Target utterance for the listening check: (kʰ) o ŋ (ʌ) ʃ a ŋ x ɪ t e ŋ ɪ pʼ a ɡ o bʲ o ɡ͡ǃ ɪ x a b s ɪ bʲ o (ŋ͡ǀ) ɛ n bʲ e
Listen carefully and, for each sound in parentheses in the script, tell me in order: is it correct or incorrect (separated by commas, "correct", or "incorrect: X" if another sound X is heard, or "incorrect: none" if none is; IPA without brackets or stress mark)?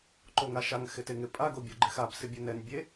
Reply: incorrect: ǃ, incorrect: a, incorrect: n